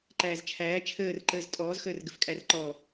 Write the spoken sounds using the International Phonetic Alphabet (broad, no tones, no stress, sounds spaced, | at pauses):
ǃ æː z t͡ʃʰ æː t͡ʃʰ əː r ǃ əː z tʼ ɔː z x əː r ɡ ə f kʼ æ r ǃ ɔː